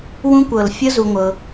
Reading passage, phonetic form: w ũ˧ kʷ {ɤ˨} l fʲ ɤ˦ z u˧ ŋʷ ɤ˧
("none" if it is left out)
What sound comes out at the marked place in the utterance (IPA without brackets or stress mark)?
ɤ˨